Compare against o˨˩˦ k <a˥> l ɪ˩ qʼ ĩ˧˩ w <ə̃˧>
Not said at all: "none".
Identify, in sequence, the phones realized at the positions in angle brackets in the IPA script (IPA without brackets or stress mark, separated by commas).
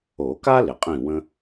a˥, ə̃˧